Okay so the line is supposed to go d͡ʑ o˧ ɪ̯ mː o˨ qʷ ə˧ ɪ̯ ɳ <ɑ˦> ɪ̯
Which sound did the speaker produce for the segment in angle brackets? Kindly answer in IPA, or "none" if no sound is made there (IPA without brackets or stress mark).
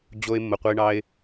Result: ɑ˦